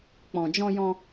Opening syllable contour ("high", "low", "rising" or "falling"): low